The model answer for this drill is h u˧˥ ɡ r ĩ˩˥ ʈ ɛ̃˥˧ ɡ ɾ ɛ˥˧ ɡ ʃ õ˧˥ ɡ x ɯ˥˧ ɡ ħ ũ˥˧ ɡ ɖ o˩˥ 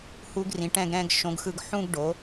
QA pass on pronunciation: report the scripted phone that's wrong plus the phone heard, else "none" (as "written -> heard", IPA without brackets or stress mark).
ɛ˥˧ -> ɛ̃˥˧